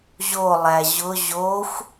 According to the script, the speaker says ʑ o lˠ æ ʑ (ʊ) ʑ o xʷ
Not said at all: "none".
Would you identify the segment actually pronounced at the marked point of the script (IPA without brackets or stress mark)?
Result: ʊ